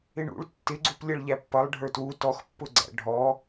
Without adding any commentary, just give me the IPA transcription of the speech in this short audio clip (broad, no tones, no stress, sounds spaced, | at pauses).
ɪ ɳ ṵ ɭ tː ɪ ɡ͡ǀ u p lʲ ʌ ɭ ʎ æ pː ʌ lˠ ɖʱ ə˞ t w u t ɔ x pː ʊ ɡ͡ǀ æ̰ ɖʱ ɔ